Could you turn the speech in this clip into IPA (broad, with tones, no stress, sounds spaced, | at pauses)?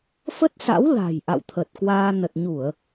f ə˦˥ t̚ s a̰˧˥ w l a̤˨˩ j ʔ a̰˧˨ w t̪ʰ ə˨˩ t̚ k w aː˧ n ə˨˩ t̚ ɲ u˧˩˨ ə̯